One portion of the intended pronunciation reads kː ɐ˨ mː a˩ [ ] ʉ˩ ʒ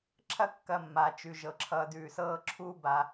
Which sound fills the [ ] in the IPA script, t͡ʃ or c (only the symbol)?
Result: t͡ʃ